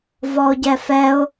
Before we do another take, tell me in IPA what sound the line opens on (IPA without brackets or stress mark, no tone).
v